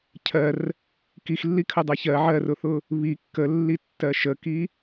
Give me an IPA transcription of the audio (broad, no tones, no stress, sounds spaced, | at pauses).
cʰ ɜ r | k i x lː i kʰ ə dˤ a ç ɜ ʕ ɜ r ʊ θ ʊ | β i kː ə lː i tː ɜ ʃ ə k i